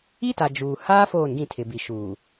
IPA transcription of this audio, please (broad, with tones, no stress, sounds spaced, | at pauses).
i˦ t a˨ d͡ʒ uː˨ h aː˦ f oː˦˨ n ɡ ĩ˦˨ tʰ ɪ˨ b i˨ ʃ uː˨